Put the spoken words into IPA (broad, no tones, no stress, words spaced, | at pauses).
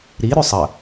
ɾi ɾʉsˤə